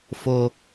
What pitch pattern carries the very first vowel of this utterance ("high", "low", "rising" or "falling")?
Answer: high